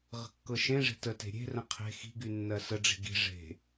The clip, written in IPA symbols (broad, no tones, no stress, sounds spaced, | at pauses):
ʁ ə̤ kː ɤ ʃ ẽ ʐ e̤ t ə t e̤ ɾʲ e̤ r ə̃ qʰ e̤ x i̤ ɡ y nː ɜ s ə ɖ͡ʐ i̤ ɡ i̤ ʐ e̤